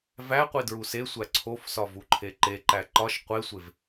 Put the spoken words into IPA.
væqʷi dɹusesʷæ ǀʰofsɒ vuǃʰeǃeǃæ ǃɒʃ qʷesʷev

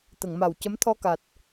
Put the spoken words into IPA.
t̪ə˨˩˨ŋma˨˩wcə˧˥m t̪ʰɔ˧ka˨˩t̚

